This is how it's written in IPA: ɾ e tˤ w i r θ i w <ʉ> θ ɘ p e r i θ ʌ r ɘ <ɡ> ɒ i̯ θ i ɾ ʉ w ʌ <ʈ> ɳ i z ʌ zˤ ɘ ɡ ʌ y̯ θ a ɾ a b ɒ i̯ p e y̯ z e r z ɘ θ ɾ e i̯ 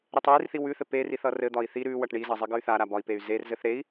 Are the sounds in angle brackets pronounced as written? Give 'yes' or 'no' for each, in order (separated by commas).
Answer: yes, no, yes